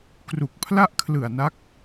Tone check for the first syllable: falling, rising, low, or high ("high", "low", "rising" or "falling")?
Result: low